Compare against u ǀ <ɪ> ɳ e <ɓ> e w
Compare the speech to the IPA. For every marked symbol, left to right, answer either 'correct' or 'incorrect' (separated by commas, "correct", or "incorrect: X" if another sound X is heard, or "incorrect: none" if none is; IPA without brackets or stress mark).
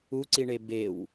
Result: incorrect: i, incorrect: b